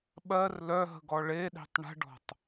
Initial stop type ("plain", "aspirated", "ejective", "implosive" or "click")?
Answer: implosive